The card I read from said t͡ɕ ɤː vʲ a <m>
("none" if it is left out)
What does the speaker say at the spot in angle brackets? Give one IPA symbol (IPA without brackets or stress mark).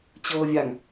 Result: ŋ